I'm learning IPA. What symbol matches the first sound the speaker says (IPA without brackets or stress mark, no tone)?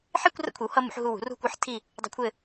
ħ